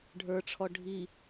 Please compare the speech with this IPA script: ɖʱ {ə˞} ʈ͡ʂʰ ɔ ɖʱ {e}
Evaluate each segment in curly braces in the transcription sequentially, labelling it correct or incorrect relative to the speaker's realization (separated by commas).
correct, incorrect